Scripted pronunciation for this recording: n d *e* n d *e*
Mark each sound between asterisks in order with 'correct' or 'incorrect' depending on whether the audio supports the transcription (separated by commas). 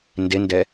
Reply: correct, incorrect